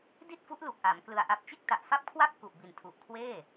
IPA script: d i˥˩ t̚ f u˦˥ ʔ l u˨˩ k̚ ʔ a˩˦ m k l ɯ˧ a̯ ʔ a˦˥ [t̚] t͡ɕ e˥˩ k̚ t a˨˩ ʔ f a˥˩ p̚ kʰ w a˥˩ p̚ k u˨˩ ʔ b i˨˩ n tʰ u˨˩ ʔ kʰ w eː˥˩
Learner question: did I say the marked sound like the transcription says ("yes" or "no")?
no